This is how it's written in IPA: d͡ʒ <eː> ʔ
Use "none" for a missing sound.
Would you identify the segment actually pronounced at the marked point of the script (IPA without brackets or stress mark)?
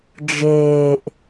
eː